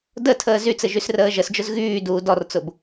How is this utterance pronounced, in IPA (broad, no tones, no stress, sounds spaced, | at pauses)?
d ə tʰ əː z y t͡s ɘ ʒ y s r əː ʒ ə s d͡ʒ ʊ z ɣ yː d uː d ɔ r t͡s ʊ b